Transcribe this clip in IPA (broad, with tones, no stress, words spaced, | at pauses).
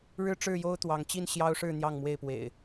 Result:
ɻɻ̩˦ʈ͡ʂɻ̩˥˨jo˦ʊ̯ t̪wɑ˨˦ŋt͡ɕi˥˨nɕjɑ˦ʊ̯ʂɻ̩˥˨ n̪jɑ˥˨ŋmwe˥˨ɪ̯pwḛ˨˩ɪ̯